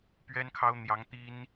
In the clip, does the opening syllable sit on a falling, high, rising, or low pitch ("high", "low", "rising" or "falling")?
high